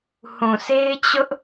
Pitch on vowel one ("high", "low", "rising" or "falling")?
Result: low